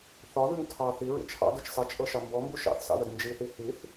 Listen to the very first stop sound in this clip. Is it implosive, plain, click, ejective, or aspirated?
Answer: aspirated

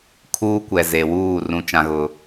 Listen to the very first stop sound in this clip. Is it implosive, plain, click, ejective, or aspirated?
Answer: aspirated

